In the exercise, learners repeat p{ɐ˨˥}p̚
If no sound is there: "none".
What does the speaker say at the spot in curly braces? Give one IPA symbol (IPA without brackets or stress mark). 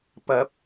ɐ˨˥